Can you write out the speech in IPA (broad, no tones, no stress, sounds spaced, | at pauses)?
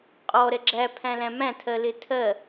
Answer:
qʼ ɔ ɾ ɛ ɡ͡ǁ æ pʰ æ̃ l æ̃ m æ̃ tʰ ɜ l ɪ tʰ ɜ